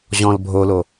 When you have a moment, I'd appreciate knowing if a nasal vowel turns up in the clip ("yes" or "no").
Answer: yes